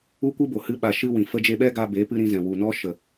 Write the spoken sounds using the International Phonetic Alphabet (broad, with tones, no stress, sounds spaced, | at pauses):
u˦ kʷ ɨ˦ b o˨ h ɨ˦ ɓ a˧ ʃ ɨ˦ w ĩ˨ f ə˦ d͡ʒ e˦ ɓ ɛ˦ ɡ aː˧ b e˨˦ p ɨ˧ ɾ ĩ˧ z ɛ̃˨ w u˨ n ɔ˦ ʃ ə˨